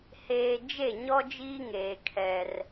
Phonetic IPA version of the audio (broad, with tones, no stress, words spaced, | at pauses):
heː˨ d͡ʒe˦˨ɲɔ˦ d͡ʒiː˦ŋeː˨ kʰɛ˦r